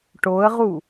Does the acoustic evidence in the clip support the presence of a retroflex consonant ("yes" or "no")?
yes